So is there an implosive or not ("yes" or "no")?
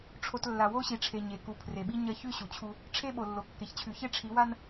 yes